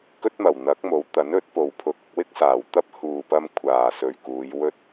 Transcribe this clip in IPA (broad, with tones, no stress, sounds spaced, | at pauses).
k ɵ˥ t̚ m ɐ˨˩ w n̪ ɐ˨˥ k̚ m o˨˥ w t̪ ɐ˨˥ n ɵ˨˥ t̚ p o˨ w pʰ ʊ˨ k̚ ʊ˧ k̚ w ɪ˥ k̚ s aː˨˩ w t̪ ɐ˥ p̚ h uː˨ p ɐ˧ m kʷʰ aː˨˩ s ɵ˨ ɥ k uː˨˧ j w ɵ˥ t̚